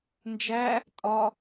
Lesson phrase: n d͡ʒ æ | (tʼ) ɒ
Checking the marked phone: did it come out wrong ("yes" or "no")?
no